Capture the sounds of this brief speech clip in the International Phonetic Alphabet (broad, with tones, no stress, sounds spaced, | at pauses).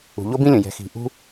ṳ˩ ʎ o˥ b ĩ˥ lʲ ə̃˩ j ɛ̤˩ x i̤˩ ʔ ṳ˦